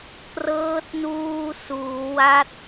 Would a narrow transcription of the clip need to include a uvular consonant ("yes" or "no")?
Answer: no